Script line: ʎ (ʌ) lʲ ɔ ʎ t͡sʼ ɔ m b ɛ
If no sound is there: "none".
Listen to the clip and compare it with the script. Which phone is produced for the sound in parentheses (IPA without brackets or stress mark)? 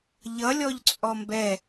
ʌ